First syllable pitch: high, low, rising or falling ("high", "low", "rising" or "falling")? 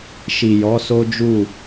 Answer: low